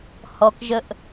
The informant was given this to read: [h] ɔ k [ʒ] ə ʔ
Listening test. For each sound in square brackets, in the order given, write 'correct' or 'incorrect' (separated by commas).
correct, correct